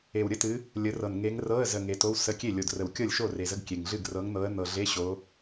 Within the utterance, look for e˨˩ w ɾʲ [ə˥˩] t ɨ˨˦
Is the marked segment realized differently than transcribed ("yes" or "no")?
yes